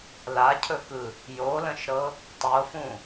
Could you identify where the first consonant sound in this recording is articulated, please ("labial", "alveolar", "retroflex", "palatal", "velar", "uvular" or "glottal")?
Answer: alveolar